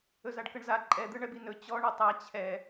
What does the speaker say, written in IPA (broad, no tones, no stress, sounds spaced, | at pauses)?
ɵ z a ɖ k ɤ ɳ z a ǃʼ ɛ d̪ ɯ ɳ ɛ b i n ɵ t͡ɕ ɔ ɳ ɔ tˤ a t͡ɕʰ ɛ